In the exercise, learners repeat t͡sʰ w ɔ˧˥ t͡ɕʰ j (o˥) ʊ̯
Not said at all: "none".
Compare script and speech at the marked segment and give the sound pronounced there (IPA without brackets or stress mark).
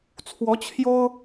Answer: o˥